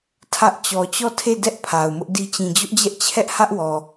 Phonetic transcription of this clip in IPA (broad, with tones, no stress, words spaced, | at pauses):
tʰä˦ʔ t͡ɕɔ˨t͡ɕɔ˦˨tʰe˦˨ dɛ˦ʔ pʰa˨ʊ̯mʊ˦ʔdi˦ t͡ɕĩ˨d͡ʑʊ˦ʔd͡ʑɛ˦ʔ t͡ɕʰɛ˦ʔhä˦ʔwɔ˨